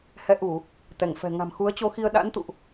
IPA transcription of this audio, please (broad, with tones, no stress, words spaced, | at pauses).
hɛ˨˦ʔu˧˩˨ | t̪ɛ˧˩ŋfɛ̤˨˩ ŋa̤˨˩mxu˨˦ə̯t͡ɕo˧xi˧ə̯ ɗa̰˧˥nt̪ṵ˧˨ʔ